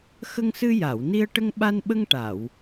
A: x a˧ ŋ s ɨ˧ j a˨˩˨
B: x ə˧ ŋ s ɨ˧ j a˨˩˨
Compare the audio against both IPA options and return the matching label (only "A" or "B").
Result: B